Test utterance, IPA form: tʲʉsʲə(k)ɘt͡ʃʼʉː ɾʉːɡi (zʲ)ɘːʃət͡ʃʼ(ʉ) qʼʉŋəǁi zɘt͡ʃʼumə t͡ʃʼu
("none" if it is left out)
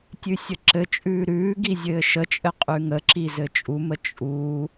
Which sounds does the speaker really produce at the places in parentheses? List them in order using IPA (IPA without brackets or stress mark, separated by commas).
ǁ, zʲ, ɘ